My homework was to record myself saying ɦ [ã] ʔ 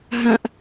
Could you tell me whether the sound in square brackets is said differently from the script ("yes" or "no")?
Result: no